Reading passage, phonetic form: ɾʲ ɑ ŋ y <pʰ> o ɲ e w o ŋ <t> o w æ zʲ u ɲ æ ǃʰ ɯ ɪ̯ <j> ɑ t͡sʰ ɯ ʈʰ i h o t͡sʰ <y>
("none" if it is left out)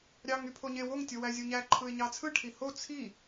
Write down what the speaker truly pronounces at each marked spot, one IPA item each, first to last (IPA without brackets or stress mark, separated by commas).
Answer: pʰ, tʲ, ɲ, i